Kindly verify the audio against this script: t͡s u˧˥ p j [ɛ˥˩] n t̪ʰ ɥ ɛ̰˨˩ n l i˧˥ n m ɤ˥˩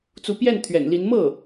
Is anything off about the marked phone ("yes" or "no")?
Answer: no